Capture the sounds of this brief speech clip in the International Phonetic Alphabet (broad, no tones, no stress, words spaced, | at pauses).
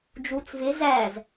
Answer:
d͡ʒut͡s vɪ zæz